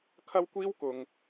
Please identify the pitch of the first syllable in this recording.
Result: high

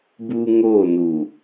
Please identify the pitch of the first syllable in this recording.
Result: high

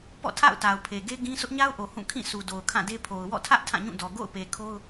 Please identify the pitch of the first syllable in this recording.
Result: falling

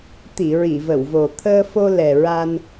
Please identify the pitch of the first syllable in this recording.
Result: low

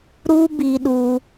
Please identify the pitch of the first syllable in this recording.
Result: high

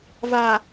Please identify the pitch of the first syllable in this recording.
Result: low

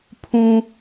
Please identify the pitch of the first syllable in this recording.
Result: high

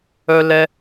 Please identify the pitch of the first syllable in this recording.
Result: high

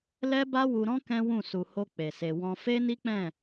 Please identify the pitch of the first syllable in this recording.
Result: high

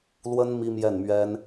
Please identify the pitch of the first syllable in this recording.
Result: high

